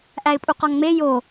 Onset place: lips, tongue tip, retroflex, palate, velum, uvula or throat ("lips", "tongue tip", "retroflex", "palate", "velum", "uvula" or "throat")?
throat